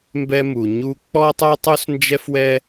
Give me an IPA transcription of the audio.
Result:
m b ɛ˥ m u˩ ɲ u˥ k͡p ɔ˥ tˤ œ˥ tˤ u˥ s n d͡ʒ ɛ˥ f w ɛ˥

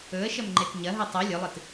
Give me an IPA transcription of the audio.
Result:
ɵ ə̯ ʃ ɐ m ŋ͡ǃ e t ɲ ɐ ɦ ɨ tˤ ʉ lʲ ɵ lˠ ɨ t

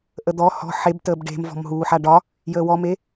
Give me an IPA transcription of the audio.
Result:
ʔ ə d̪ ɔ h ɔ̤ ħ e b t əː b ɖ e̤ m v ɔ̤ m ɦ uː ħ a ɖ ɒ | j əː w ɔ m e

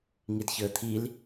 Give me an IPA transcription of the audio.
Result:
ŋ i d ç əː t̪ʰ i l

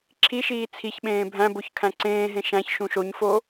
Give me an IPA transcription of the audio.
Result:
ǁʰ i ʃ iː t͡sʰ i ç ɓ ẽː bʱ æ̃ b o ç kʰ æ̃ ǀ ẽː ɦ ẽ ʃ æ̃ ç ʃ ũ ʃ o ɲ f o

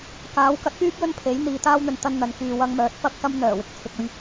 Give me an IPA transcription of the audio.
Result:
k aː˨˥ w k ɐ˨˥ t̚ p yː˥ p̚ j ɵ˥ n pʰ e˨˥ j n̪ iː˨˧ t̪ aː˥ w n̪ ɵ˧ n t̪ ɐ˧ n n̪ ɐ˨ n k yː˨ w ɐ˧ ŋ m œː˨˥ t̚ p ɐ˥ k̚ s ɐ˥ m n̪ œː˨˩ w ɪ˨ k̚ t͡sʰ ɪ˨ k̚ ɵ˧ ɥ

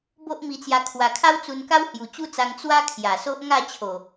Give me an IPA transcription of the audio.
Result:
b o˦ ʔ m i˧ t͡s j a˧ kʰ w a˨˩ kʰ a˦ w t͡s u˧ n k a˦ w h j u˨˩ t͡ɕ u˦ t͡s a˧ ŋ t͡s w a˦ kʰ j a˨˩ s o˦ ʔ ŋ a˥˧ t͡ɕʰ o˨˩

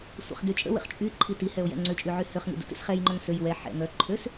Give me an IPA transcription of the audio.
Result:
sʷ ə̰ χ d y t͡ʃʼ ə̰ w ə̰ χ t͡ʃʼ y ǃʰ i t i h ɛ o̯ j ɛ̰ ŋ͡ǀ ʏ t͡ʃʼ y ʕ y h ø χ ŋ ḭ d ə̰ t ḭ s χ ɛ j ŋ͡ǃ œ ŋ s ø j w ɛ ħ ɛ̰ ŋ œ ǃʰ ø s

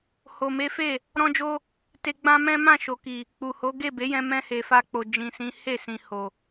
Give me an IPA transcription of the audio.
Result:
h o˨ m e˨˦ f e˦˨ | ɾ ɔ̃˧ d͡ʒ o˧ | t e˧ ɡ͡b ã˦ m ɛ̃˦ m ã˦˨ ʃ o˨ k i˨ | k͡p u˨ h o˨˦ ɡ e˦˨ b e˨˦ j ɛ̃˧ m ɛ̃˧ h e˨ f a˧ k͡p o˨ d͡ʒ ĩ˨ s ĩ˨˦ h e˦˨ s ĩ˨ h o˨

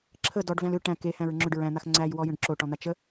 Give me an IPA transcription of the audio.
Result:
ǁʰ ə d ɔ ɖ v æ̃ l ʏ ʈ æ̃ k e h æ̃ ɹ ŋ͡ǁ ʏ ɖ ɹ æ̃ n̪ a x ŋ͡ǀ æ j w ɔ j ə̃ ɖ ǁ o ʈ ɔ̃ n̪ a t͡ʃ ə

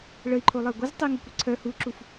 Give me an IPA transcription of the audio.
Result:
ɭ ə i̯ ǃʰ o lˠ ɐ i̯ ɡʷ ə z tˤ i ŋ œ kʷ i ǀʰ œ h u ǁ u f

